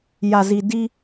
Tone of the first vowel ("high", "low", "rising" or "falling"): low